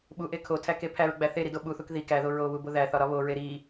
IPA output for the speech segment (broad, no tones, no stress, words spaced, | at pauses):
ɓuʔe kʰotʰæke pʰæɹɡ͡bæ θeɾido ɓuθuk ði kæðo ɹoβubo ðæθɒɾɒ βoɹe ɾi